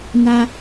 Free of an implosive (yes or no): yes